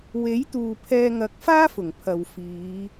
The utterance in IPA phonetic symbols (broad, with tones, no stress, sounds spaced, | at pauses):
w e˨˥ j t̪ uː˨ pʰ ɛː˧ ŋ ɐ˨˥ k̚ f aː˥ f ʊ˨˩ ŋ pʰ ɐ˨ w f iː˨˧